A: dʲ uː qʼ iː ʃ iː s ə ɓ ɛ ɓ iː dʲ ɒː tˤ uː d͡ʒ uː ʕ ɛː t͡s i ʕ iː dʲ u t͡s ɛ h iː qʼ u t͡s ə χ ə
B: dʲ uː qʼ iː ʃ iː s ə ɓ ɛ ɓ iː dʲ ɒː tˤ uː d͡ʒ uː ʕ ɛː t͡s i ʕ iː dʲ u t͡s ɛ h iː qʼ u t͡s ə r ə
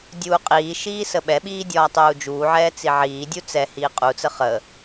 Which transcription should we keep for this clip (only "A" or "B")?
A